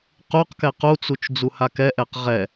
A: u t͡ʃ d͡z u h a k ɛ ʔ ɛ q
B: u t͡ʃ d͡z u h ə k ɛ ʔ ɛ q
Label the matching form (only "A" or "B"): A